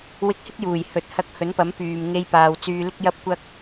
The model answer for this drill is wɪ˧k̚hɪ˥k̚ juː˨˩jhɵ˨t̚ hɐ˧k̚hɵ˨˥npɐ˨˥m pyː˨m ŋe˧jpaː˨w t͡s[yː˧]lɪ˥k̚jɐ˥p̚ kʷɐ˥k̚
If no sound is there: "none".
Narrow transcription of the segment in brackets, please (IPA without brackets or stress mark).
yː˧